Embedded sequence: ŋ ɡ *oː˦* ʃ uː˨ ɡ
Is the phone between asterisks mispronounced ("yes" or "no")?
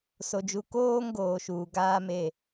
yes